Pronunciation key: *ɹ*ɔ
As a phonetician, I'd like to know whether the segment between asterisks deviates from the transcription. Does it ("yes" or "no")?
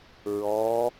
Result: no